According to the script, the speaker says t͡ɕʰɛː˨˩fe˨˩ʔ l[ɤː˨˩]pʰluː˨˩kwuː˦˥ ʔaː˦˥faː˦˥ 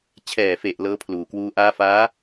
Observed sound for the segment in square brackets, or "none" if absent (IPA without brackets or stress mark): ɤː˦˥